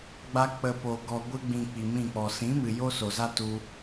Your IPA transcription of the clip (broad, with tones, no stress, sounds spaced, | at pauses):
ɡ͡b a˧ k͡p ə˨ p o˨ ɡ ɔ˨ ɡʷ ɨ˧ ɡ͡b ĩ˨ k͡p i˨ m ĩ˦˨ k͡p ɔ˨ s ĩ˨˦ m ɨ˨ j o˦ s o˨ z a˦ t u˧